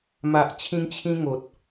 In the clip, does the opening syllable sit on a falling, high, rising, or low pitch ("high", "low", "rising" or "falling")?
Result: low